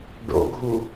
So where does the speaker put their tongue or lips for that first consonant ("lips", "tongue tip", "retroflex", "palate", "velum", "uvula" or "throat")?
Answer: retroflex